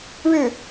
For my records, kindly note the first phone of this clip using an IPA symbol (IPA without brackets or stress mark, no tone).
ɻ